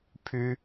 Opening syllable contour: high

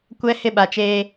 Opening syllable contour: high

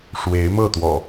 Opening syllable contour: rising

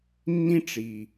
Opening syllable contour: high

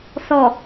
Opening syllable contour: low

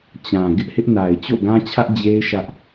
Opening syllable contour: low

